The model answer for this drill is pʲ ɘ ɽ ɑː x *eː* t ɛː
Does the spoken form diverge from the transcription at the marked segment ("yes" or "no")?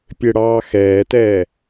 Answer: yes